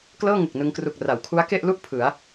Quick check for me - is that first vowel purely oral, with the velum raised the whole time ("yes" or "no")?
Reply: yes